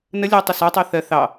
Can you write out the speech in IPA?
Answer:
n ə lʲ ɜ tˤ i s ɒ tˤ i θ ɜ θ ɑ

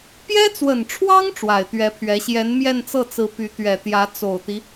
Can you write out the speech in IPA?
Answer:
p j ɛ˥ t͡s w ə˨˩ n ʈ͡ʂʰ w ɑ˥ ŋ ʈ͡ʂ w a˨˩ ɪ̯ t̪ ɥ ɛ˧˥ pʰ ɥ ɛ˧˥ ɕ j ɛ˧˥ n m j ɛ˥˧ n t͡s ɤ˥˩ t͡s ɹ̩˧˥ p y˧˥ t̪ ɥ ɛ˨˩ t̪ j ä˧˥ t͡s o˨˩ ʊ̯ t̪ i˦

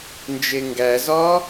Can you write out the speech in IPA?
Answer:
n d͡ʒ e ŋ ɡ æ z ɒ

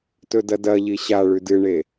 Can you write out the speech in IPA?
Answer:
t ɵ d ɐ d ɐ ʎ i ɕ a ɭ ʉ d ɨ ɳ e

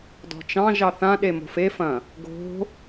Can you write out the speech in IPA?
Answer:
d ɔ̤ t͡ʃ ɑ̃ ʒ ɑ θ ã ɗ e m o̤ f e f ɐ̃ | ɡ o̤

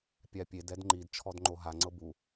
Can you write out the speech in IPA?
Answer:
pʲ a pʲ e d ɛ d ŋ͡ǃ i d t͡ʃʰ ɔ d ŋ͡ǃ o ɦ a ŋ͡ǀ ɤ b u

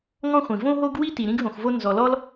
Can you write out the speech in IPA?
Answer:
ŋ ɔ̃˥ χʷ ĩ˩ v õ˥ ɦ o˥ ɡ w i˥ t i˩ ɾ ĩ˥ ɡ ɦ õ˩ x v o˥ n z ɔ˩ l ɔ˥ l

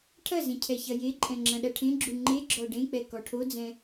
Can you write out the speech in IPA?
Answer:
ʈʰ ɐ z ẽ cʰ ɛ ç ɐ j e ǃʼ ɛ̃ ŋ͡ǁ ɐ̃ ɗ ɐ ʈʰ ẽ ɡ͡ǁ u ŋ͡ǃ e ɡ͡ǁ ɔ ɖ ẽ k͡p ɛ k ɔ ʈʰ o d͡z ɛ̃

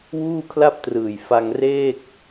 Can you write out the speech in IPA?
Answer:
w uː˥˩ kʰ l a˥˩ p̚ t r ɯː˨˩ j f a˧ ŋ r eː˥˩ k̚

